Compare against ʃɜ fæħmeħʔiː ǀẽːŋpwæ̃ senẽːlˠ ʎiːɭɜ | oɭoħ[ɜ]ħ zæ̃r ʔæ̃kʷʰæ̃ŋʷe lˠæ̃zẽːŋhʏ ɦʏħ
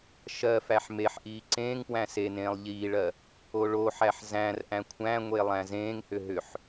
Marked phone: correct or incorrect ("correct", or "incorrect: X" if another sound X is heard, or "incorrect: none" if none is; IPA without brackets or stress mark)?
incorrect: æ